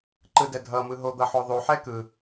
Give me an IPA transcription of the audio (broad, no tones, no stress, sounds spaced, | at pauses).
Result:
ǃ ɯ d ɛ dʱ ʌ m ɯ ɦ o d̪ ʌ ħ o ðˤ u ħ ɛ k ɯ